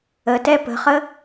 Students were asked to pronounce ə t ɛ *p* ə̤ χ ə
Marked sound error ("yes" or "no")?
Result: no